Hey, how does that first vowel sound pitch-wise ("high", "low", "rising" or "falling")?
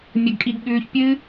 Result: high